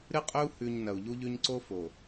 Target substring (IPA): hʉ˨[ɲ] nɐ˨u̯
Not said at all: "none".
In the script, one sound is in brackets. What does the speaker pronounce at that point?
ɲ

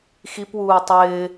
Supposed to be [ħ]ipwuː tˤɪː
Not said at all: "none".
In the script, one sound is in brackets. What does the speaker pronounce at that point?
x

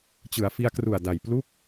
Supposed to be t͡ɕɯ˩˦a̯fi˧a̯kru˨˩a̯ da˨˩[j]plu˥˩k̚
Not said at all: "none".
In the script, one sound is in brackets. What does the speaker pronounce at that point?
j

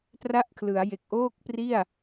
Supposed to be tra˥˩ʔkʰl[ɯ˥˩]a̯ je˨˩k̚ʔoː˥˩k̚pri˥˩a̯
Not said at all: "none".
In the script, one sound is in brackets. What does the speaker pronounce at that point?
ɯ˩˦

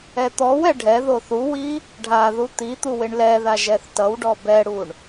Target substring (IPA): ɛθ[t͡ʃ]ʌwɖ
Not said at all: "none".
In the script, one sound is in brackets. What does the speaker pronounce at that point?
t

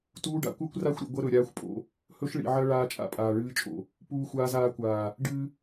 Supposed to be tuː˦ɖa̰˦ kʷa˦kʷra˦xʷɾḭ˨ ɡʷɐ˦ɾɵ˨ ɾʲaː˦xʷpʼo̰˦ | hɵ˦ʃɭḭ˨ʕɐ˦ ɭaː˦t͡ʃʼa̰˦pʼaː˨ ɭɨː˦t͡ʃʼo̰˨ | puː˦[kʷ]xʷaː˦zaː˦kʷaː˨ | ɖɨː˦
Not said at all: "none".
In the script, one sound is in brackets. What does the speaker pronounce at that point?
none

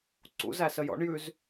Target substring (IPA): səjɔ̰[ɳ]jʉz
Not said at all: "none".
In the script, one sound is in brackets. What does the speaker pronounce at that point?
ɳ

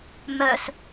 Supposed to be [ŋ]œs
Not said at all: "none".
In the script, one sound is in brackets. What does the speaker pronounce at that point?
m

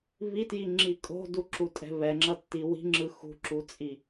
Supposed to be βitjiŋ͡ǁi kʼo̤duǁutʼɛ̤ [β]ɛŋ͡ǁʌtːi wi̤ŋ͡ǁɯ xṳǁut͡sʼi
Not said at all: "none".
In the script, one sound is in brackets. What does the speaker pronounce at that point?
β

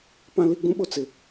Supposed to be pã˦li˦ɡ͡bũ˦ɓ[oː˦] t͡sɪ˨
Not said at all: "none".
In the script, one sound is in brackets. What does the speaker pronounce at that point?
o˦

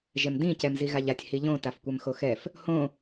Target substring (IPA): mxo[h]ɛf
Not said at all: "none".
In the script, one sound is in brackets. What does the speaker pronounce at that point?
x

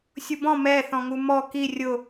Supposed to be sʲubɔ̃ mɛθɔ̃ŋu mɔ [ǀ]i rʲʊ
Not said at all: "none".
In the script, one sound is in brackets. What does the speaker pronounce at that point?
k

